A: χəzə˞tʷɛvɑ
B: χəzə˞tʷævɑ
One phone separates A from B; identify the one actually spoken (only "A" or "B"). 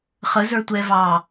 A